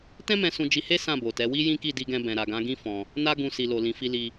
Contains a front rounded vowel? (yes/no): no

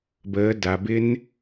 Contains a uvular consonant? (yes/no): no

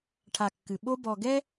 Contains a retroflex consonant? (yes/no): yes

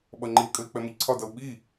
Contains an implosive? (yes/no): yes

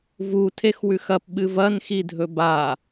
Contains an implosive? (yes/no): yes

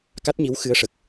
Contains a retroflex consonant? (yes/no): yes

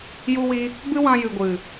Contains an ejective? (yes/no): no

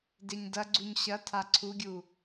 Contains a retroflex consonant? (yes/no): no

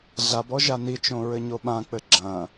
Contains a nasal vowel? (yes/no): yes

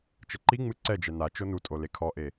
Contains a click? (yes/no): yes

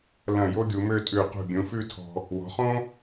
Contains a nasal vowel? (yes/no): yes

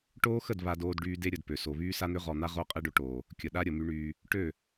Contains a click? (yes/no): no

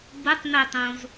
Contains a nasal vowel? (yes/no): yes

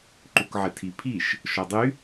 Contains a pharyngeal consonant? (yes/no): yes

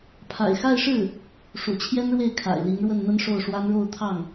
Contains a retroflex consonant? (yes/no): yes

